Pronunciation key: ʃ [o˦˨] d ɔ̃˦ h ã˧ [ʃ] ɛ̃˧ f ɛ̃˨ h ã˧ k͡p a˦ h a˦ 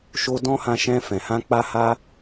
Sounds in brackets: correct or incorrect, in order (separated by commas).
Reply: incorrect, correct